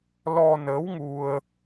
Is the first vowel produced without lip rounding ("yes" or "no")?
no